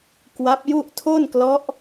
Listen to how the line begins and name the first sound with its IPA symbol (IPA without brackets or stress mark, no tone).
k